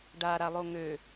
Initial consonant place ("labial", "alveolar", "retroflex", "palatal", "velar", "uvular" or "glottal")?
retroflex